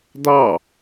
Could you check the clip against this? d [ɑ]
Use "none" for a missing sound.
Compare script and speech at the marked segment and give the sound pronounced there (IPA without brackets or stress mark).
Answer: ɑ